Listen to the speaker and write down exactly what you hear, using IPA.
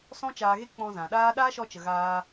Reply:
s ɔ̃˦ t͡ʃ aː˧ ɣ e˦ k͡p ɔ̃˧ z ã˨ ɗ aː˦ ɗ aː˦ ʃ ɔ˧ t͡ʃ ə˨ ɣ aː˧

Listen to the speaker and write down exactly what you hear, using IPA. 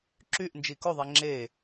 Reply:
ǁ y ʔ n d͡ʒ i k o ðˤ e ŋ͡ǁ e

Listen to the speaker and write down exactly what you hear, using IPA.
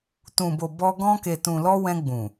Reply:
t ũ˨ b o˨ b ɔ˧ ɡ ɔ̃˧ k e˨ t ũ˨ l ɔ˧ w ɛ̃˧ ɡ͡b ũ˨

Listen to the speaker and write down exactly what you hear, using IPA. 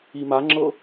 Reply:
i m a ŋ͡ǁ ɤ

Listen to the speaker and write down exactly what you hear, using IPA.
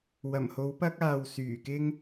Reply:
w ɐ˨˩ m h o˨˥ w p ɐ˥ k̚ aː˧ w s yː˨˩ k ɪ˥ ŋ

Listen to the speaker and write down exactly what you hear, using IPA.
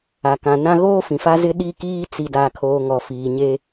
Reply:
a˨ k ã˨ n ã˦ ɣ oː˦ f ĩ˨ f a˦ z ɪ˦ ɗ i˦ k iː˦ t͡s i˨ d a˨ kʰ oː˨ ŋ ɔ˨ f iː˨ ɲ e˦

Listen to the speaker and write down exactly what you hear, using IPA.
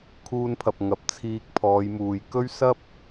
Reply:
kʰ uː˧ n pʰ ɐ˨ p̚ ŋ ɐ˨˥ p̚ t͡sʰ iː˧ k̚ pʰ ɔː˨˧ j m uː˨ j k ɵ˥ ɥ s ɐ˥ p̚

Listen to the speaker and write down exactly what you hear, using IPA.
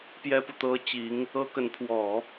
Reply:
p j ɛ˥ p u˨ t̪ ɤ˥ t͡ɕ i˧˥ ŋ | ɤ˥ k ə˧˥ n pʰ w ɔ˨˩˦

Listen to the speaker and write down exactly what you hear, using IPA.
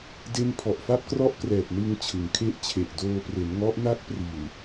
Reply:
d e˥˩ n pʰ ɔ˨˩ ʔ f a˥˩ p̚ k r ɔ˥˩ ʔ k r ɛː˨˩ p̚ n ɯ˧ ŋ t͡ɕʰ ɯ˩˦ ŋ kʰ e˦˥ ʔ t͡ɕʰ e˨˩ ʔ d oː˧ p r e˩˦ n ŋ ɔ˦˥ ʔ n a˦˥ k̚ p r i˨˩ n

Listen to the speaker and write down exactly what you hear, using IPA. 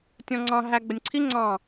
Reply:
tʲ ɔ̃ ŋ͡ǀ ɑ̃ ɦ æ ɡ͡b ə nʲ ǀʰ i ŋ͡ǀ ɑ̃

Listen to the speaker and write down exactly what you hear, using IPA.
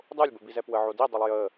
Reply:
dˤ o lʲ b ə b i z ɛ p w ə ʕ o d i dˤ ə lˠ j ə

